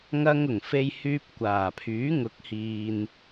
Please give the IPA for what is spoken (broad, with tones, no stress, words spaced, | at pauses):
ŋɐ˧ŋ ʊ˨˩ŋfe˧jhyː˧p̚ kʷaː˨˩pʰyː˨˥ŋʊ˨˥k̚hiː˨n